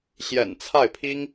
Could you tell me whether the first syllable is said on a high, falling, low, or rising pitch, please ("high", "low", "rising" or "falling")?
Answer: low